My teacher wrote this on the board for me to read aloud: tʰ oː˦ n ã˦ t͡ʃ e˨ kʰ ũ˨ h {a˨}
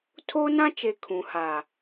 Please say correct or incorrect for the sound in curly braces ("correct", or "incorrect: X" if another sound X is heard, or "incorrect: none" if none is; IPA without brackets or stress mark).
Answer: correct